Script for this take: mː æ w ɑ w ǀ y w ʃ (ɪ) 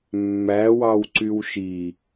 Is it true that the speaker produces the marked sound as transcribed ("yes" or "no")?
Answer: no